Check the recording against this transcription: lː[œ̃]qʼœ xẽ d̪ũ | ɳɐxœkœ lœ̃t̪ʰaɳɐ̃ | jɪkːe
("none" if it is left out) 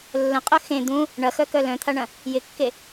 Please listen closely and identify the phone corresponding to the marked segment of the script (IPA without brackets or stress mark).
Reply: ə̃